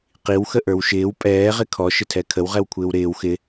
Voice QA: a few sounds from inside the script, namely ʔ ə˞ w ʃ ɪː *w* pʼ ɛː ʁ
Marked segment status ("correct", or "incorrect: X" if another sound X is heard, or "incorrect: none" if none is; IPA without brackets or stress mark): correct